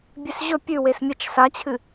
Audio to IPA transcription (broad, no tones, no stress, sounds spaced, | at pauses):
bʲ ʉ s ʑ ɵ pʲ ʉ w e s mʲ ɐ t͡ʃ s a t͡ɕʰ ɨ